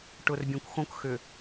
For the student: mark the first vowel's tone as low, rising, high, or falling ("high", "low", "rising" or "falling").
low